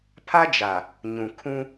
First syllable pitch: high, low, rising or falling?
high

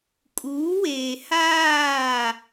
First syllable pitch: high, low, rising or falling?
rising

